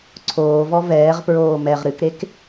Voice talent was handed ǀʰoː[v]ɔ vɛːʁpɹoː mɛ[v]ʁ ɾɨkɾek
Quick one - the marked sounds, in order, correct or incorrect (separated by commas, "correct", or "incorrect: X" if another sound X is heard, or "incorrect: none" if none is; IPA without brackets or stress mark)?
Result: correct, incorrect: none